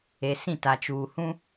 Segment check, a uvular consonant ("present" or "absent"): absent